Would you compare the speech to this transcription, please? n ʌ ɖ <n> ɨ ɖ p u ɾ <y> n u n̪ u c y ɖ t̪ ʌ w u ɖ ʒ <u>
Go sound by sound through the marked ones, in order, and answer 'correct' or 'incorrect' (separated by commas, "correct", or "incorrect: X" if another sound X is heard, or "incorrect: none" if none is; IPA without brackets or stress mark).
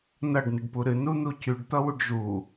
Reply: correct, incorrect: ɨ, correct